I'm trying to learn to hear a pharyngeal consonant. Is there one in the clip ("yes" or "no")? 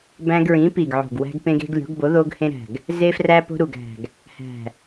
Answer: yes